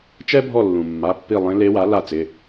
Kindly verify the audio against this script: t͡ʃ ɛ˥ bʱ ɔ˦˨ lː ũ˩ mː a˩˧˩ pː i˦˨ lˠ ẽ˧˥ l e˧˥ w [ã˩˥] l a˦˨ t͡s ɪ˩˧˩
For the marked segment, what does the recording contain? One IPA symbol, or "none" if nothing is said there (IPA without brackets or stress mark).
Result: a˩˥